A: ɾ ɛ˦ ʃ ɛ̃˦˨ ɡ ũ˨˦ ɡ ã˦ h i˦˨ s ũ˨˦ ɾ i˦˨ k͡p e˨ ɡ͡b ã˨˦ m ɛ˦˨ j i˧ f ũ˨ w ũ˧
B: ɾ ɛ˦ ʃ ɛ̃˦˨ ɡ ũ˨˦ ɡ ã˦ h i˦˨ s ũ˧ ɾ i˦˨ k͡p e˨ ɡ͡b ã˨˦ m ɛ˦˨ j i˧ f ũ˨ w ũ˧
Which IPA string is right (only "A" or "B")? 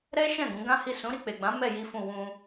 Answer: A